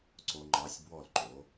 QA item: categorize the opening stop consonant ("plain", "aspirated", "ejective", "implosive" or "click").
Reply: click